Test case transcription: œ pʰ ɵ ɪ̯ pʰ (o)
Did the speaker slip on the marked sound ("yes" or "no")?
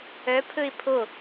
no